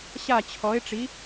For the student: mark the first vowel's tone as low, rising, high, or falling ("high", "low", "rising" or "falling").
falling